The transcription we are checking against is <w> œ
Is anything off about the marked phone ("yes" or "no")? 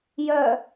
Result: yes